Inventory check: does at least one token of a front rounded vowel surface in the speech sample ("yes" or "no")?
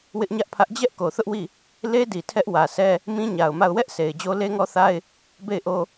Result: no